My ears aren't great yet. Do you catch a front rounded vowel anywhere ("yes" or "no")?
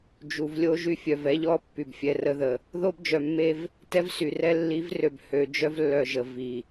yes